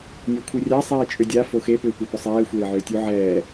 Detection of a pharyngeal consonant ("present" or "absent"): present